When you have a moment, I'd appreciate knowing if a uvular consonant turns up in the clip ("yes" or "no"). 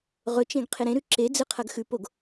yes